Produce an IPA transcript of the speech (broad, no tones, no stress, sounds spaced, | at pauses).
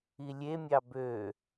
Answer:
i lʲ e mʲ ɑ b ø